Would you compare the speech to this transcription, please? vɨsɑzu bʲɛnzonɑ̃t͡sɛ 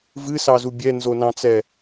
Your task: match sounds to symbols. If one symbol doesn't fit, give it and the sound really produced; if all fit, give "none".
none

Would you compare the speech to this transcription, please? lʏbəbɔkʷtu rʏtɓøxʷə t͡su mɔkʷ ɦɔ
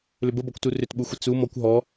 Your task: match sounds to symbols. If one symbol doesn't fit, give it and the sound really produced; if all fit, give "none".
ø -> u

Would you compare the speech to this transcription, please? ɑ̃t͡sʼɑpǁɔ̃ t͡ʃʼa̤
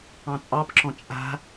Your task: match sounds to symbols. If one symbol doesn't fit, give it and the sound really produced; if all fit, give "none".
none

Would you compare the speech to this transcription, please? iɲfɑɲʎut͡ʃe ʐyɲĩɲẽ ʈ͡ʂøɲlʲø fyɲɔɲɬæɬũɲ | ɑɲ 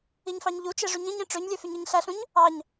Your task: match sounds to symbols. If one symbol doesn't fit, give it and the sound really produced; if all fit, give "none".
ɔ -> ɑ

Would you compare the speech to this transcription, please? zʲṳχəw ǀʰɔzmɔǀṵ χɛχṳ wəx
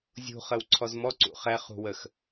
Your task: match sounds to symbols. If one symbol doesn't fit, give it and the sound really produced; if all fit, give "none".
none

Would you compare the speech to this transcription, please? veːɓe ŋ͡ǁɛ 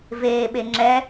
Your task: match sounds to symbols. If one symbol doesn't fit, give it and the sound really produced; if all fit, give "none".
none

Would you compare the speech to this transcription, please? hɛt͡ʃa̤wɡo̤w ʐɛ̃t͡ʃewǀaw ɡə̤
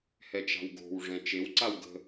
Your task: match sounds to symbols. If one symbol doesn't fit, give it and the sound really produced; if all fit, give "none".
none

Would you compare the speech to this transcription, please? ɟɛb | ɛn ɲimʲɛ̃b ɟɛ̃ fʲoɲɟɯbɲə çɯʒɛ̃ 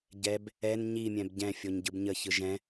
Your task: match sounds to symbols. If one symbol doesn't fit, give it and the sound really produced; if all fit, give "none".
none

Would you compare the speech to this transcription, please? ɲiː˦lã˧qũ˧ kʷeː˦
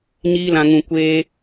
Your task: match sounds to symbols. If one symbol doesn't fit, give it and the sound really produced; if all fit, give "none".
q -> ŋ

